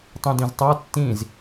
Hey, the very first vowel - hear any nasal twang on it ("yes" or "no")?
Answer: yes